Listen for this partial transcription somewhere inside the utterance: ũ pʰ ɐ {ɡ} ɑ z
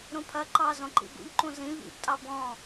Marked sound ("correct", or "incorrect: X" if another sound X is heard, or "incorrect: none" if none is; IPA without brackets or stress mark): incorrect: ǃ